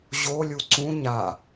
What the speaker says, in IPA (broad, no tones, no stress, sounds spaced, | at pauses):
ʑ o lʲ u ǀ ũ ɲ a